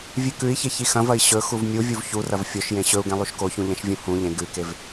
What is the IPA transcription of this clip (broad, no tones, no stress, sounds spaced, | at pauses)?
vʲ ʉ k ʉ i̯ ç e ç i x ɐ̃ v ɐ i̯ ɕ ɵ x u v mʲ u vʲ u v ç u r ɐ v fʲ o ʃ j ẽ ɕ ɵ u̯ ɡ ẽ lˠ u ʃ k o ç ũ ʎ ɐ̃ ʃ vʲ ũ h ũ ʎ ẽ ɡ ʉ k e v